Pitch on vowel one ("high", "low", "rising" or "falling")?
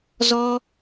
high